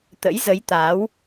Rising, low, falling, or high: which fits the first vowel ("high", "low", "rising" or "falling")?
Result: rising